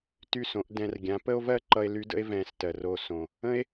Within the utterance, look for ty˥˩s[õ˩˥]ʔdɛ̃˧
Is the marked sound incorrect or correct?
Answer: correct